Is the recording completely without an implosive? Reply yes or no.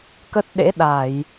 no